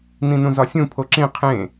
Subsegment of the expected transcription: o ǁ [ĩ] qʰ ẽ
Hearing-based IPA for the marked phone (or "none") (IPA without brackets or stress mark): ĩ